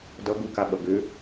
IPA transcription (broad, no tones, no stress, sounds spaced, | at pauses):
d ʌ ɡ u k a ɓ ʌ ɡ ʏ